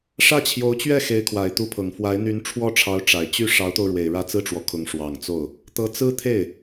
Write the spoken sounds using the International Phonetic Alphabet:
ʂ ä˥˩ t͡ɕʰ j o˧˥ ʊ̯ t͡ɕ ɥ ɛ˥˩ x e˧˥ ɪ̯ kʰ w a˨˩ ɪ̯ t̪ u˧˥ pʰ ɤ˨˩ ŋ f w a˧˥ ɪ̯ n̪ y˧˥ n ʈ͡ʂʰ w ɔ˥˩ ʈ͡ʂʰ ɑ˧˥ ʊ̯ ʈ͡ʂ a˨˩ ɪ̯ t͡ɕ y˥˩ ʂ ɑ˧˥ ʊ̯ t̪ o˧ ʊ̯ ɻ w e˨˩ ɪ̯ ɻ ä˥˧ t͡s ɹ̩˥˩ ʈ͡ʂ w ɔ˩ kʰ ʊ˧˥ ŋ ʂ w ɑ˨˩ ŋ t͡s o˥˩ ʊ̯ | t̪ ɤ˧˥ t͡s ɹ̩˥ t̪ʰ e˥˩ ɪ̯

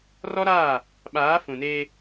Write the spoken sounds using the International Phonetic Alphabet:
r ɔ˦ ɾ aː˦˨ | ɓ aː˨˦ f ũ˨ n eː˦

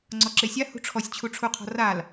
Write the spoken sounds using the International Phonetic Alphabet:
ŋ͡ǀ ɔ ǁ e sʲ a h ṳ ʈ͡ʂʰ ɔ sʲ t͡ɕʰ u ʈ͡ʂʰ u qʰ ɔ̤ r a l

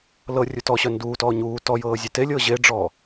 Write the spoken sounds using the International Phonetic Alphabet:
l ɤ rʲ u t ɔ ɕ œ n d uː t ɔː ɲ uː t ɔ j ɤː zʲ e t e lʲ ɤː ʑ e ɖ͡ʐ ɔː

